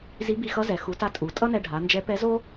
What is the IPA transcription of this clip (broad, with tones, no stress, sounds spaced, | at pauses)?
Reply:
z i˧˥ b i˧ x ʌ˧˥ z ɛ˩ x u˩˧ t a˧ tʼ u˩˧ tʼ ʌ˥ n ɛ˧ ɖʱ a˩˧ n d͡ʒ ɛ˧˥ p ɛ˧˥ z o˥